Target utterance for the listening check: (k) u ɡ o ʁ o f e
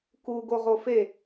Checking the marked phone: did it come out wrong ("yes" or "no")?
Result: no